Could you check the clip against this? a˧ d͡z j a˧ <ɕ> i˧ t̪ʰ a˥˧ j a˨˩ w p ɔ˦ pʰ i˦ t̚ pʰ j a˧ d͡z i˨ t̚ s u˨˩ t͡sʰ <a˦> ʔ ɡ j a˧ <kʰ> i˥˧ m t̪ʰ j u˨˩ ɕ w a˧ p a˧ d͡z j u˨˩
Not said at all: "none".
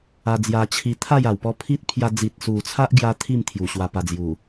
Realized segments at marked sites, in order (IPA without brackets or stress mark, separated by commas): t͡ɕʰ, a˦, t̪ʰ